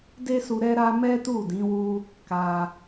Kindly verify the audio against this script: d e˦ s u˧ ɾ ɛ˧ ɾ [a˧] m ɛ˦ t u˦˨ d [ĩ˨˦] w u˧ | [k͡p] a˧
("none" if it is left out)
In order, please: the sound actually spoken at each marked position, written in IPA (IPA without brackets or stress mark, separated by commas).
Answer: a˧, ĩ˨˦, k